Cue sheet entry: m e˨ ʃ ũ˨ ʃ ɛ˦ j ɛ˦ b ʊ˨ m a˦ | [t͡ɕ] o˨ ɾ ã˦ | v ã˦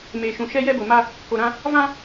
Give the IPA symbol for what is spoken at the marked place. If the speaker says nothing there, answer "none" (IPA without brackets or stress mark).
k